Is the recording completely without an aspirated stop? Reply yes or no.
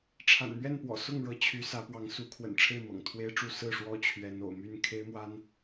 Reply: no